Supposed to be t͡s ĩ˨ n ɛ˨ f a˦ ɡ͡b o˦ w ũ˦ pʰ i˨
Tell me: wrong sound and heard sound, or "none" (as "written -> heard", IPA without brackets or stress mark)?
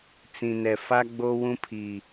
none